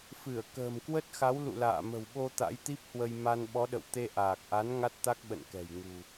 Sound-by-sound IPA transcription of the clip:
fɨ˧˩ə̯ kə̤ː˨˩mkwə˦˥t̚xa˨˦w lṵ˧˨la̰ː˧˨mə̤˨˩wɓo˧ t̪a̰˧˥jt̪i˦˥p̚hwə˧j ma˧nɓɔ˨˦ɗə̰˧˨w t̪e˧ʔaː˨˩k̚ʔa˨˦n ŋa˦˥t̚t̪a˦˥k̚ ɓə̰˧˨nkɛ̤˨˩jŋṳ˨˩

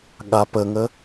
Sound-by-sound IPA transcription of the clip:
ɠa pəŋə

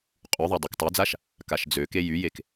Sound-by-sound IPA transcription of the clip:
qʼyðˤo dˤøktˤœd͡zaʃ | kaʃd͡zøke jyjek

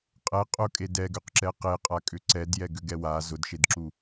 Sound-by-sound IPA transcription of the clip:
qʼɛ qʼʊkʼe dɛɡʏqǁɛ qeqʼakʼʏ ǀɛdjɛɡʏɡɛ wa zʊdʃedǁu

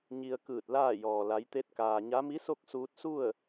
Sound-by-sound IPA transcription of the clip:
ɲi˧ə̯kɯː˧˩t̚ laː˥˨jɔː˩ la˩˧jt̪e˧˥t̚kaː˩ɲa˧˥ mi˧˥so˥˨k̚suː˧t̚su˥˨ə̯

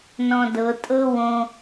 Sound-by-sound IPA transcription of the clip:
nɔ̃dɤ tʼɤwõ

